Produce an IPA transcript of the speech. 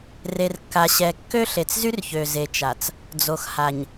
re˨rkːa˨ɕɛ˨ kːø˦ ɬe˨t͡szy˦rçø˨ze˨ t͡ʃa˨t͡s | d͡zo˨xha˨ɲ

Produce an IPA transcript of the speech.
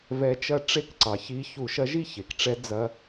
vɛ˧˥t͡ʃɐ˥˧ ʈ͡ʂe˥˧k ǀɑ˩çi˧˥ çu˧˩˧ʃɐ˧˥ʒi˥˧ çe˩kʈ͡ʂɛ˧˥ d͡zɐ˧˥

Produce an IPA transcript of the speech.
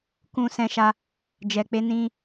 kũ˧sɛ̃˧ʃa˧ | d͡ʒɛ˨k͡pe˧ nĩ˧

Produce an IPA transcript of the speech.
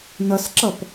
nʌsǁʌp

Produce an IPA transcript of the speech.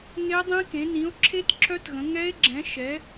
ŋe˦˥dˤĩ˦˥kẽ˨˦ nĩ˨˦o̯ǁʰe˦˥t ǁœ˦˥tɣə̃˨˦ ŋɛ˦˥e̯ɡ͡ǁɛ̃˨˦ ʃɛ˨˦

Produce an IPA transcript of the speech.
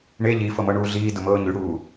ɳe ʎifɤmɤɳuː ɮiːdʊmɤː ɲyɽuː

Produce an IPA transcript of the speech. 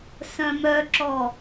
sœ̃mœǁɔ

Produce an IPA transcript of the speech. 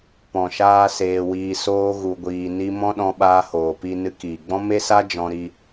pɔ̃˨ʃaː˧ seː˧wiː˧ soː˦ɣu˧ɡʷiː˧ni˦ mɔ̃˦ɗɔ̃˧ɓaː˧ hoː˨pi˧ nɨ˧kiː˨ɡ͡bɔ̃˦ me˦sa˦ d͡ʒɔ̃˧ɾi˧

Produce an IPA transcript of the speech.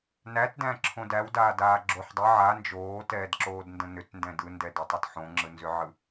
nætdæ̃ǁʰõ dæwdaːdaːɡ͡ǁoħ dˤə ʕa nd͡ʒoːtɛːdǁoːdndə̃ nʏtndɛ̃ dɯndɛdatˤɯt ħõŋ͡ǁɯnzʏʕɯ

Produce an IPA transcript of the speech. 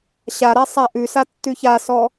ɕaɾa sˤaʔʉsa tːʉçasɔ

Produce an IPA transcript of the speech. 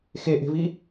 xeʔe̤vi

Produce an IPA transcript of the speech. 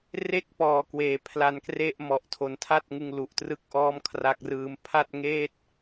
re˦˥k̚pɔː˨˩kweː˩˦ pʰla˧nkre˥˩ʔ mɔ˨˩ʔtʰo˨˩ntʰa˥˩t̚ ŋɯ˧ŋlu˨˩ʔtrɯ˥˩k̚ʔɔː˥˩m kʰra˦˥k̚rɯː˦˥m pʰa˥˩t̚ŋeː˥˩t̚

